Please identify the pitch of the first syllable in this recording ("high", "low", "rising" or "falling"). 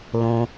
low